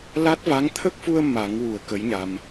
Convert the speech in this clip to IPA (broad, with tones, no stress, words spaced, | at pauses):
la˦˥t̚va˧˥ŋ t̪ʰə˦˥k̚fu˧ə̯ ma˨˩˦ŋwu˨˩˨ə̯ kə˧˥jɲa˧m